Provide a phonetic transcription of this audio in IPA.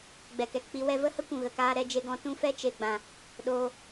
ɡ͡b ɛ˨ k ɛ˨ k k͡p i˧ w ɛ˧ v ə˦ h ə˦ kʷ ũ˨ ɣ ə˨ k aː˧ ɾ ɛ˦ d͡ʒ e˦ ɡ ɔ̃˧ t ũ˦ f ɛ˦ t͡ʃ e˨ ɡ͡b ã˨ | ɗ oː˦

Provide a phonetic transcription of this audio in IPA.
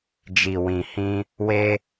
d͡ʒ i˨ w ĩ˨ h ĩ˧ | w e˦

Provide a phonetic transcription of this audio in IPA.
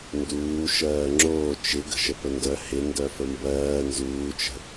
n d uː ʃ ɜː ŋ͡ǁ oː t͡ʃ ɪ ɡ ə̤ ʃ ə p ə n d œ h ɪ n d œ f ə m b ɜː n z uː t͡ʃ ə̤

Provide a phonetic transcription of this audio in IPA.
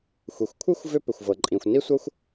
xʷ i˩ xʷ kʷʰ ɨ˥ xʷ v ʏ˥ p ʏ˩ xʷ v ɤ˩ ǃʼ ĩ˩ xʷ n i˥ sʷ ɤ˥ xʷ

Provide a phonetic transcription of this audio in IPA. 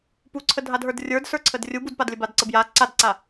p u ǀʰ ə dʱ a d ɦ ə˞ d rʲ ə˞ d s ə˞ ǀʰ ə d rʲ u b u d p a d lʲ ə b a d ǀ ə b j a ǀ a d ǀ a

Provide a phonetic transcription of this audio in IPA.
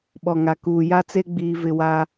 ɓ ɔ˨ ŋ a˨ k uː˨ j a˦ t͡s e˦ ɡ͡b iː˦ v ɪ˦ w a˦

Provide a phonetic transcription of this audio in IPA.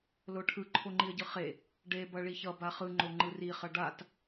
l o ʈʰ ɯ ǃʰ o ŋ͡ǃ i ə̯ ɟ ɯ χ e | ɖ e b ʌ ɭ i ç ʌ b a χ ɯ ŋ͡ǃ o ŋ͡ǃ ɯ r i χ ʌ ɖ a t

